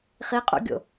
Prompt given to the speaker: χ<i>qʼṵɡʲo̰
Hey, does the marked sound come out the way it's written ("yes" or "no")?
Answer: yes